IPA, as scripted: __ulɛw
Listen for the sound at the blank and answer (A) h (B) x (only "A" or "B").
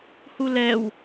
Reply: A